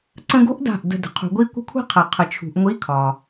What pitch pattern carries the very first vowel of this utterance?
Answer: high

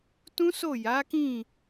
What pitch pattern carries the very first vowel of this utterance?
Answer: high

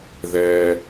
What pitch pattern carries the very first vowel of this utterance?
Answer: low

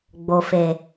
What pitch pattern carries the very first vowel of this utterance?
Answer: low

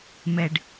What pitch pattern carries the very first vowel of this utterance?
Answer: high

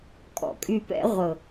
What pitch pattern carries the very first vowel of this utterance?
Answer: low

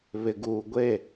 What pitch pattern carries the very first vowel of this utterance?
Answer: low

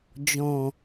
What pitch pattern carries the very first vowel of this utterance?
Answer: low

